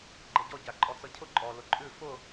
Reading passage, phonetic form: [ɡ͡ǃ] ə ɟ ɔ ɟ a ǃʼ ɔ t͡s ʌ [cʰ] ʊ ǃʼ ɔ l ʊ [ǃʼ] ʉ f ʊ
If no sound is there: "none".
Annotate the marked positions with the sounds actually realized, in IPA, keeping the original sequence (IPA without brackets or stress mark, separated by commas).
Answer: ɡ͡ǃ, cʰ, ǃʼ